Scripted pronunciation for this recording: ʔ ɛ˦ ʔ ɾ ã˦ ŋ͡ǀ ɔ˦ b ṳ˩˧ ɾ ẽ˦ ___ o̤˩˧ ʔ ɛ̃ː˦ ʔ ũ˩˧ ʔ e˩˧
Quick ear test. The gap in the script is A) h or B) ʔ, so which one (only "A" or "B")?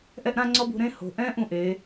A